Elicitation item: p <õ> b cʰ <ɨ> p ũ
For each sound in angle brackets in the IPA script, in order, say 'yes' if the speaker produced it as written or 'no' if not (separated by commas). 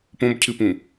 yes, yes